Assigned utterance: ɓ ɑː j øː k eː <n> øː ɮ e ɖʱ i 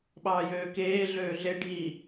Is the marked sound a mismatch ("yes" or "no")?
yes